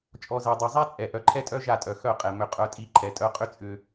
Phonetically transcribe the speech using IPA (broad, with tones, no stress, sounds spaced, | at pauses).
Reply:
t͡ʃʼ ɔ˨ z ɛ˨ dˤ ɛ˨ zˤ a˦ t͡sʼ ɛ˨ ʔ œ˨ ǃʰ ɛ˦ tʼ œ˦ ʒ a˦˨ tʼ œ˨ x œ˦˨ qʼ ɛ˨ m ʏ˨ qʼ œ˦ tʼ i˦ ǃʰ ɛ˨˦ tʼ œ˦ qʼ ʏ˦ t͡sʼ ʏ˦